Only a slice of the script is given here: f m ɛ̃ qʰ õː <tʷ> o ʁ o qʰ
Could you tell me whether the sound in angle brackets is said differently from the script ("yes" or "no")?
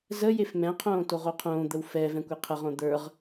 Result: yes